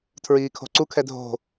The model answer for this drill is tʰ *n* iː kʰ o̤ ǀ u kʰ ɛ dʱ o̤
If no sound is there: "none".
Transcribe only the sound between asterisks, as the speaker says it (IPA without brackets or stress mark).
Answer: ɹ